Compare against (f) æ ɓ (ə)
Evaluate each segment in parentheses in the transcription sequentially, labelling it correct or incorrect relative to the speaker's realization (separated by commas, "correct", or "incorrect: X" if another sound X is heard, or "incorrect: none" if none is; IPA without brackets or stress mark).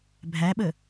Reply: incorrect: bʱ, correct